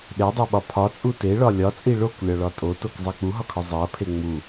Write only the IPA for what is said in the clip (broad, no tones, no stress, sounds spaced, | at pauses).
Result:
ɗ e dˤ e ɓ ɒ pʰ ɒ t͡sʼ u t e ɭ ɒ lʲ ɒ t͡sʼ i ɭ o k lʲ ɒ ɭ ɒ tʼ o t o k zˤ e k͡p u ɦ ɒ kʰ ɒ zˤ e ɐ̯ pʰ e ŋ͡m u